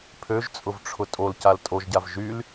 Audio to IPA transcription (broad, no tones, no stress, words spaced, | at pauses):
pʰøʒt͡sʼʊvʈ͡ʂʰʊ tʼolcal tʼoʒɟav ʒyl